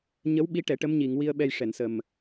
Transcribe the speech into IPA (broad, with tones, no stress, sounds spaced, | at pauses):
ɲ ə˧˥ w ɓ i˧˥ ʈ ɛ˨˩˦ ʈ ə˧˥ m ɲ i˨˩˨ ŋ w i˧ ə̯ ɓ ɛ˧ j ʂ ɛ˨˩˨ n s ə˨˩ m